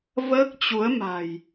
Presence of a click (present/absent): absent